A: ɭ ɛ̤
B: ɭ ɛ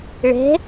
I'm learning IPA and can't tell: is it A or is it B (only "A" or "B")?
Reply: A